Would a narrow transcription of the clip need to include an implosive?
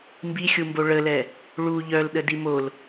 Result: yes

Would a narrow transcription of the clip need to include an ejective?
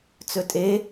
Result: yes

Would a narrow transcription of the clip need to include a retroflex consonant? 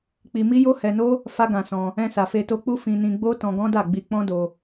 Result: no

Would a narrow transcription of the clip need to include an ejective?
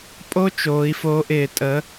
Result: yes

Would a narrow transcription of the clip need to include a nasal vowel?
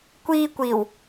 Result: no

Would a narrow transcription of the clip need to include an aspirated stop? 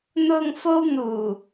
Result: no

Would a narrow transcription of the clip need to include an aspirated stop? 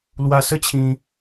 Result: yes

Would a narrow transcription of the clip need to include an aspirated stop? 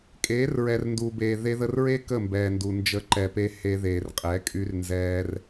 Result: no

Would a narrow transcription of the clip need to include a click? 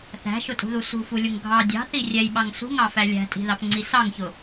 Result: yes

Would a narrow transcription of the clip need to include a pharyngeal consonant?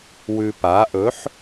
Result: yes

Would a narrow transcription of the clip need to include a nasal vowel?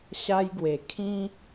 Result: yes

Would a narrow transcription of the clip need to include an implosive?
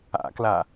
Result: no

